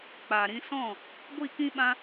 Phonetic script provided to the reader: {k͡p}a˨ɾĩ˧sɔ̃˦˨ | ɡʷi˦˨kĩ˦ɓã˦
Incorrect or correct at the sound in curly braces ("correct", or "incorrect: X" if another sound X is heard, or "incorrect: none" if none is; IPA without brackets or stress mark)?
correct